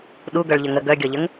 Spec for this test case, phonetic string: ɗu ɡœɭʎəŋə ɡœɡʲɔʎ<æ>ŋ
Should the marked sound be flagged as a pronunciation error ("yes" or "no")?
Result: yes